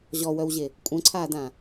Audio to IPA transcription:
ʑ ɔ w œ w ʑ e | kʷʼ œ̃ ǀʰ aː d ã

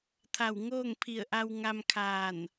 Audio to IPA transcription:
t̪ʰ a˧˩ w ŋ oː˥˨ ŋ pʰ i˧˩ ə̯ ʔ a˧ w ŋ a˧ m kʰ aː˧˩ n

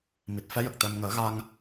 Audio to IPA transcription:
m i˨˩ t̚ f ɛ˧˥ j ə˨˩ k̚ t̪ ɛ˧ m ŋ əː˨˩˦ ɣ a˧ ŋ

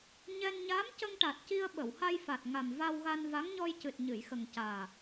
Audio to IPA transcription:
ɲ ɛ˧ n ɲ aː˧˥ m c ə˧ ŋ ʈ a˨˩ t̚ c i˧ ə̯ ɓ ə˨˩˨ w h a˧ j f a˨˩ t̚ ŋ a˨˩ m v a˧ w ɣ a˧ n v a˧˥ ŋ ɲ ɔ˧ j c ɨ˨˩ t̚ ɲ ɨ˨˩˨ j x ə˨˩ ŋ c aː˨˩

